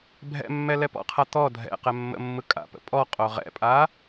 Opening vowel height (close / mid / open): mid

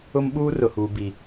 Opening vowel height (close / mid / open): close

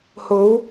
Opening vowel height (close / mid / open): mid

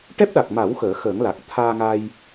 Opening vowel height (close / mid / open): mid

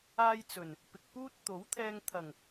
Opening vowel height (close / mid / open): open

